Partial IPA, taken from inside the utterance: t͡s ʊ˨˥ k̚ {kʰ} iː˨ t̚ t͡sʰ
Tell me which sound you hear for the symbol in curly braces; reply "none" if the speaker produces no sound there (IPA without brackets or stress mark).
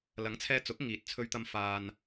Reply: ŋ